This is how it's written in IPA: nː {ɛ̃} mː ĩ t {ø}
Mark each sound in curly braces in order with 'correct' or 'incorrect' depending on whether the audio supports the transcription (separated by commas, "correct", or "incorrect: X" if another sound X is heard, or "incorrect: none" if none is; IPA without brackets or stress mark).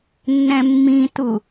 correct, incorrect: u